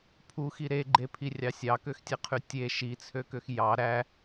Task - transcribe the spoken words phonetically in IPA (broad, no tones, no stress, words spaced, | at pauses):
pʰuxi ɾeɡ͡ǃepʰirʲɑ sʲɑkøxtʲeqʰy tʲe ʃit͡sʰøkøx jɑ ɾæ